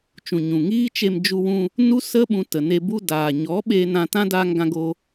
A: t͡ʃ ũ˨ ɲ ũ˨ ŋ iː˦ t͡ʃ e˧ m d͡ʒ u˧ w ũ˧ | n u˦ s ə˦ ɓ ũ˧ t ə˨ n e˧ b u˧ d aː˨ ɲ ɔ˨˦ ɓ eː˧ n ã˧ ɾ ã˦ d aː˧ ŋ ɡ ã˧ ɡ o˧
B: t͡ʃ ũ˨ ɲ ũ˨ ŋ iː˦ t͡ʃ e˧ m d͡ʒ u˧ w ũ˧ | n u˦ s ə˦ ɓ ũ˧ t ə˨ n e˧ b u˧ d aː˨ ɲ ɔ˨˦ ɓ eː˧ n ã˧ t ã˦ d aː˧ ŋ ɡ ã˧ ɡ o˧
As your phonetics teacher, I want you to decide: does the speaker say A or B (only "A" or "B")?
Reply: B